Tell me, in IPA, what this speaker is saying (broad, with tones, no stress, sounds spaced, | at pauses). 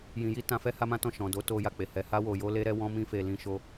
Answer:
j ĩ˨ j i˧ t ã˨ f ɛ˧ h a˦ m ã˦ t ɔ̃˦˨ ʃ ɔ̃˨ d o˨˦ t o˧ j a˨ k͡p e˨ h ɛ˨˦ h a˦ w o˧ j o˦ l e˦ ɾ ɛ˦ w ɔ̃˦ m ĩ˦ f e˧ l ĩ˦ ʃ o˦